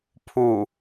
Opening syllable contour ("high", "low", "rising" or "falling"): low